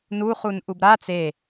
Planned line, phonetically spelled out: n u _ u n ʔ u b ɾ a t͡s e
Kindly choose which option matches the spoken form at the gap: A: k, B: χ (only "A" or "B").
B